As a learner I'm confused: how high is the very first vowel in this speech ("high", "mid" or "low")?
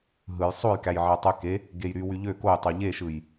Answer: high